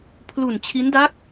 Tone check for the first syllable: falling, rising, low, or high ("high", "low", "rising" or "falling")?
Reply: low